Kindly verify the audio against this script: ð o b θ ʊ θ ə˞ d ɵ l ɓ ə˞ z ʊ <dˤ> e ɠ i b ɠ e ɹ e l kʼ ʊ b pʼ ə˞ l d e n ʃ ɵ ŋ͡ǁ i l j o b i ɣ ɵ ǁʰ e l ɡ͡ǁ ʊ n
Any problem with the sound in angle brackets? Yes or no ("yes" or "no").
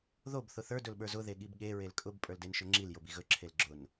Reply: yes